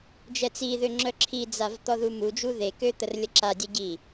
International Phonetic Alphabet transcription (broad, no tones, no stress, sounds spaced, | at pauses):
d͡ʒ ɛ t͡s i ð ø ŋ͡ǁ œ ǁʰ i d͡z a v t̪ ɔ ð u m u d͡ʒ u ð e k ø t̪ ə r lʲ ə ǁ a dʲ ɛ ɟ i